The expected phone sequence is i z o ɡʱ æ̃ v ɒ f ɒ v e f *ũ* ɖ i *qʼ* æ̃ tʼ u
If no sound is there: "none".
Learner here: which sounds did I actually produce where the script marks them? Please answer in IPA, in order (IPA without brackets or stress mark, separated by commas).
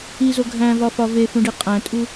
ũ, qʼ